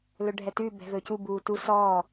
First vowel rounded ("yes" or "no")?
yes